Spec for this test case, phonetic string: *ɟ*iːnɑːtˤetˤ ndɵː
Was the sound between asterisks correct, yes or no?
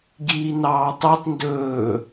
yes